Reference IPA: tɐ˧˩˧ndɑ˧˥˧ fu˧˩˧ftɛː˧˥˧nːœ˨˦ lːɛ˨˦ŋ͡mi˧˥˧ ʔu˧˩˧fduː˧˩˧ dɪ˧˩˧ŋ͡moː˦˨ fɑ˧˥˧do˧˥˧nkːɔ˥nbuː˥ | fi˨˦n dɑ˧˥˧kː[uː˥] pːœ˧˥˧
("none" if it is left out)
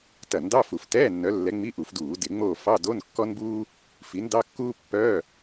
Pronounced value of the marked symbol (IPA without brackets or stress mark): uː˥